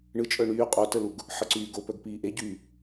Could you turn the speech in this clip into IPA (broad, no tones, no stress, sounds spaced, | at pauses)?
ɳ ɯ t͡ʃʼ œ ɳ yː qʼ o t ə l u ɡ | ħ ə ǀ yː ɡ o p œ ɡ p iː ʔ e ɟ yː